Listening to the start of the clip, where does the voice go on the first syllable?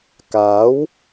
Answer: rising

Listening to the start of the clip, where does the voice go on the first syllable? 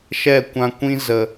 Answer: falling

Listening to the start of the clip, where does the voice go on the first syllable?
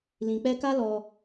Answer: low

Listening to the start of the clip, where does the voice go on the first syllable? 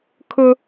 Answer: high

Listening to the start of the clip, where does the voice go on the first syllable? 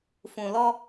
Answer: low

